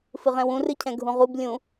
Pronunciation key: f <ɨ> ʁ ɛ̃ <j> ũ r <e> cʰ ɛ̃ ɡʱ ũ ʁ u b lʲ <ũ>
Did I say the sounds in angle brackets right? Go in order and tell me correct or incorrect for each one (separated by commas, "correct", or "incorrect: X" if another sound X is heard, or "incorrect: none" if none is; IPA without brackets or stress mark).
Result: correct, incorrect: w, incorrect: ɨ, correct